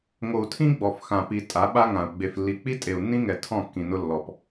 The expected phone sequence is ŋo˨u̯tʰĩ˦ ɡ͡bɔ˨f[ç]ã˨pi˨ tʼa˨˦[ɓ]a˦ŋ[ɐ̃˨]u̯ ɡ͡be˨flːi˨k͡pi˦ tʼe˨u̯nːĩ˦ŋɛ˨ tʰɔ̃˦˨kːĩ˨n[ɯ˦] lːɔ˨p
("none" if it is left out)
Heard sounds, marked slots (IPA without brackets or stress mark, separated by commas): x, ɓ, ã˨, ʊ˦